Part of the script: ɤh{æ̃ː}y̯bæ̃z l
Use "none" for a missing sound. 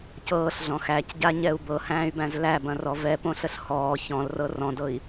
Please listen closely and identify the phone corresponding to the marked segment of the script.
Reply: æ̃ː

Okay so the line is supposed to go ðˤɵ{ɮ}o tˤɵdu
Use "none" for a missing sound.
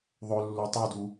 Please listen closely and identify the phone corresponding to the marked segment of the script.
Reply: lː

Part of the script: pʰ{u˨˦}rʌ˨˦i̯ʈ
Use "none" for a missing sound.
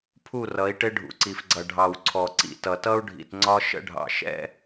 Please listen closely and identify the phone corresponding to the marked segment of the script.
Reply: u˦˨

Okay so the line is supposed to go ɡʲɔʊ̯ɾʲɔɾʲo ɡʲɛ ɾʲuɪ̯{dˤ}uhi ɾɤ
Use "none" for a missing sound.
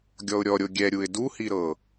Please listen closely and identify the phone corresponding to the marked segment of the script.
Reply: d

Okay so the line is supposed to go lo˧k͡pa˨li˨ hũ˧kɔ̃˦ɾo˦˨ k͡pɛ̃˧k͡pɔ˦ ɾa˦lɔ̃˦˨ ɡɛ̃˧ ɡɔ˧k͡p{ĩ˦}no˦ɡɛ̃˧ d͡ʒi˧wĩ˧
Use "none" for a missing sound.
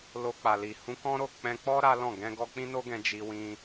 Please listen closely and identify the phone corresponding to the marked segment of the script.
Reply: ĩ˦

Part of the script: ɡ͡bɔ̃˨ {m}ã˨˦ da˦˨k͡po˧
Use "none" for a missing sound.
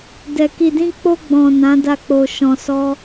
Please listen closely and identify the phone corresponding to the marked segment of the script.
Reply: n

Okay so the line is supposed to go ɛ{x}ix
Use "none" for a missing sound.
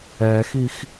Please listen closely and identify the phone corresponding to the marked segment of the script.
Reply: x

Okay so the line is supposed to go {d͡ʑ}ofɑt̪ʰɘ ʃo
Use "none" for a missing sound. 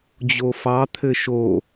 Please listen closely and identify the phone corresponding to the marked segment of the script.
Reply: d͡ʑ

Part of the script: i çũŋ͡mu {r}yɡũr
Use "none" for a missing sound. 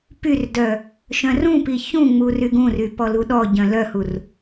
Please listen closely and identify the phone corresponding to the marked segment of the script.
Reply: r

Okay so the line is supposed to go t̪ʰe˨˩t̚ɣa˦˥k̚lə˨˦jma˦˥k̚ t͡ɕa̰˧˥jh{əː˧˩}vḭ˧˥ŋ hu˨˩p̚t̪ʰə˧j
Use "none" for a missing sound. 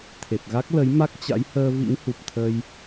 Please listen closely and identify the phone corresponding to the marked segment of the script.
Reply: əː˧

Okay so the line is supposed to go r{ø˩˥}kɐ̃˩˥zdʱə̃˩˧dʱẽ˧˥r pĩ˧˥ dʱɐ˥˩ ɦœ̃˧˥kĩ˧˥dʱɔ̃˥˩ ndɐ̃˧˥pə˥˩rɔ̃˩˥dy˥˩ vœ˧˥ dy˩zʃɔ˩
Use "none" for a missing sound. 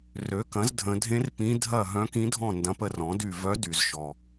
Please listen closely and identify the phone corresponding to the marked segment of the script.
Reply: ø˩˥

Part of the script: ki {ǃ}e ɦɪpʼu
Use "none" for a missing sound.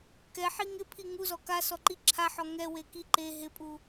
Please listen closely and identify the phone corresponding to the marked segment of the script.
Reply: ǃ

